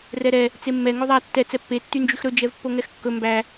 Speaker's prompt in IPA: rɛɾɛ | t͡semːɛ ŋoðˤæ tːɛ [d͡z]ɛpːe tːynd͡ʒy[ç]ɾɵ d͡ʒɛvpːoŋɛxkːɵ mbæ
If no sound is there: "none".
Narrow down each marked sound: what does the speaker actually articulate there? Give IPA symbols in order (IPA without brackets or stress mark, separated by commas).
t͡s, x